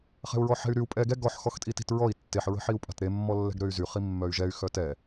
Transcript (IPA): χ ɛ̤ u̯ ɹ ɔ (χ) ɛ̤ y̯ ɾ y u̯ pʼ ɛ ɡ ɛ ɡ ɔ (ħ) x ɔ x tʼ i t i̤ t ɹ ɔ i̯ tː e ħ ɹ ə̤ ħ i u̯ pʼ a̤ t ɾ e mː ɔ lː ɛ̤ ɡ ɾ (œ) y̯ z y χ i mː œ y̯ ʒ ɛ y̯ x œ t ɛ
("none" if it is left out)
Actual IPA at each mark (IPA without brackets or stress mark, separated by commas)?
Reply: ħ, ħ, ø